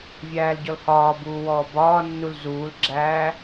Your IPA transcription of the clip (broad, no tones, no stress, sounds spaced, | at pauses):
vʲ æː l ɟ ɔ l h ɒː b uː w ɔː b ɒː nː u l z uː l ɡ͡ǁ æː